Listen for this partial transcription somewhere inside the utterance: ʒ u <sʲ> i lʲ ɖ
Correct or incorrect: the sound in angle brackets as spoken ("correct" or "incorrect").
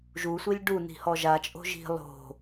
incorrect